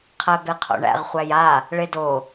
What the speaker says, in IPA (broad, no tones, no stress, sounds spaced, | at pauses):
qʰ æ b e qʰ o̰ ɳ æ̰ ʁ χʷ æ j a | ɭ e d o